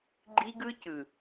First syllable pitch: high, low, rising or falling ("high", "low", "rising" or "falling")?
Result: high